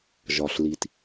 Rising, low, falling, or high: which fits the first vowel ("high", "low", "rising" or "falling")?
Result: low